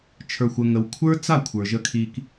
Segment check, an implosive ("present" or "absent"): absent